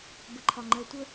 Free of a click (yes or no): no